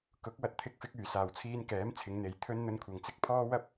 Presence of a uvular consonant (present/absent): absent